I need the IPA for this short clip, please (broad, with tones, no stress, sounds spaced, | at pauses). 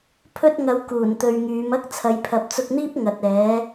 pʰ ɵ˧ t̚ ŋ ɐ˨˧ w k uː˨˩ n t̪ ɵ˨ ɥ ŋ yː˨˧ m ɐ˥ k̚ t͡sʰ ɐ˨˧ j pʰ ɐ˨˥ p̚ t͡s ʊ˧ k̚ n̪ iː˥ p̚ ŋ ɐ˨ t̚ ɛː˨˧